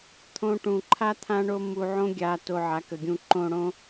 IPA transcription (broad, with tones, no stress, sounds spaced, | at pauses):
t̪ʰ õ˧ ʈ ũ˨ ǃʰ a˦ t̪ʰ ã˦ ɳ o˦ m u˧ ʕ õ˦ ɡʲ a˧ t o˧ ʕ a˨˦ k ə˨ ɡʲ ũ˧ ǃ õ˧ ɽ õ˦